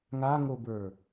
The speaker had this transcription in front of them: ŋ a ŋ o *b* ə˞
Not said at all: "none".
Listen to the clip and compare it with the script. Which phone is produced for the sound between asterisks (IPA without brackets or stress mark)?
b